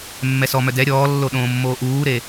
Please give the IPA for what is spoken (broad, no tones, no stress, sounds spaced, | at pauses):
mː ɛ s ɔ m œ d ɛ ɾʲ ɔː lː o ɗ õː mː oː ʔ uː ɾ e